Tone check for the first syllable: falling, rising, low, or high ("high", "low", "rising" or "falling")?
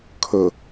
low